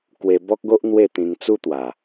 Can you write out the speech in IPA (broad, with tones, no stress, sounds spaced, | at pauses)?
k w e˧ b ɔ˦ k̚ ɡ o˦ ʔ n̪ w e˥˧ t̪ ĩ˧ ŋ t͡s u˦ t̪ w a˨˩